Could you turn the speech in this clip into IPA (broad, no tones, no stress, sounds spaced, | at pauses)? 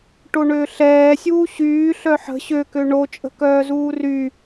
ʈ o ɳ øː ɬ ɛː sʲ uː ɕ yː ɬ œ ħ ə̤ ɕ ø k ø ɳ o t͡ʃʼ ə̤ k œː z uː r y